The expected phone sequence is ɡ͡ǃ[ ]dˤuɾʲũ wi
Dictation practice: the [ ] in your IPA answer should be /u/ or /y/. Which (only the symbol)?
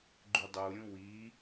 y